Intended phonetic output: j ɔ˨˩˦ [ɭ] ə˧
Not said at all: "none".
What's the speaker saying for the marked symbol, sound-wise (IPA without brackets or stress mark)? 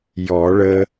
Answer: ɭ